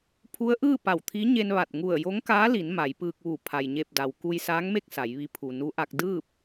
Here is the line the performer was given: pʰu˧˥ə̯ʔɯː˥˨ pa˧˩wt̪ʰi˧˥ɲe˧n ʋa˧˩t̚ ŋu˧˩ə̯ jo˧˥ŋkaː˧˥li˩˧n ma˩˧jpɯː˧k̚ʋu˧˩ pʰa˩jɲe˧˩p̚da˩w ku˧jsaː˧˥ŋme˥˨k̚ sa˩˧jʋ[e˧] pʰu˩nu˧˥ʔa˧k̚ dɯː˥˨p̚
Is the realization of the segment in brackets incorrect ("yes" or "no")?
yes